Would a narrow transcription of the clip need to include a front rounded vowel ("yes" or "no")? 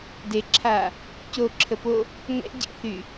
yes